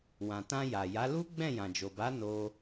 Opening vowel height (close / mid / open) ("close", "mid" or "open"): open